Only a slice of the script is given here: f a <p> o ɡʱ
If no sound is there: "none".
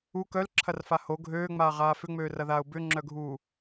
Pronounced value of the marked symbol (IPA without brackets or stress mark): h